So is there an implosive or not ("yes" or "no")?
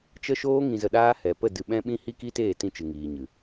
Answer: yes